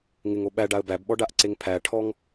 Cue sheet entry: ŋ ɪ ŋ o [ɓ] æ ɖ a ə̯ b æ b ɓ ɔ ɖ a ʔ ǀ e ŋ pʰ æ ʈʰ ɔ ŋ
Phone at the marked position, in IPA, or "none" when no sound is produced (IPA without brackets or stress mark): ɓ